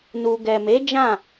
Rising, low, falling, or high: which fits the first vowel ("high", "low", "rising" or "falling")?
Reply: low